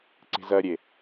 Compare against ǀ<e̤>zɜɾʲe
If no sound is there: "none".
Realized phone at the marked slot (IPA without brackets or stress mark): e̤